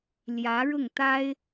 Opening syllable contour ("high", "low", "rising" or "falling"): rising